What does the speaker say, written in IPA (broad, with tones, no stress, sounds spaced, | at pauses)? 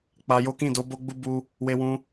k͡p a˧ j o˦ k ĩ˦˨ d o˨˦ b o˦ ɡ͡b u˦ b u˦ | w e˧ w ũ˧